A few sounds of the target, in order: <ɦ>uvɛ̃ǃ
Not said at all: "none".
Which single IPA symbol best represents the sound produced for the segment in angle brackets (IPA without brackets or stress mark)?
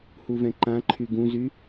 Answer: h